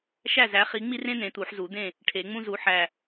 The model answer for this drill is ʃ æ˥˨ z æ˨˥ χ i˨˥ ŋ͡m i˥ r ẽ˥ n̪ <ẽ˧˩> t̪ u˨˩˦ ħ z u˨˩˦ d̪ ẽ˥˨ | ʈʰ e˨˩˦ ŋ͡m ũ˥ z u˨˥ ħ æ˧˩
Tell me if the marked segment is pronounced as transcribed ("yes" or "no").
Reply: no